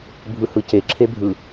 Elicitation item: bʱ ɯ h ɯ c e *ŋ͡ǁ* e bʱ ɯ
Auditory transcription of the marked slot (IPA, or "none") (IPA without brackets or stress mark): ǁʰ